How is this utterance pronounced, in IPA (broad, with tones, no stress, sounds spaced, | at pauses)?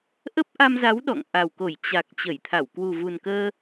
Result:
ʔ ə˦˥ p̚ ʔ a˧ m z a˨˦ w ɗ ɔ̰˧˨ ŋ ʔ a˨˩ w k o˧˩ j t͡ɕ a˨˩ k̚ t͡ɕ ə˧˩ j t̪ʰ a˧˩ w k w u˨˩ v u˨˩ n k əː˧